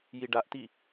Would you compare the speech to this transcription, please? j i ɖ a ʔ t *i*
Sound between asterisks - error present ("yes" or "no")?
no